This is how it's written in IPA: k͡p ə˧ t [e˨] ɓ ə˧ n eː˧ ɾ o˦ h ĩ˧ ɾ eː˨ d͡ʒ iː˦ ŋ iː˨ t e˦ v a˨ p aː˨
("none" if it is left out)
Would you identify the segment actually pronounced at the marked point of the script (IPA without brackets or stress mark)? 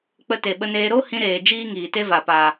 e˨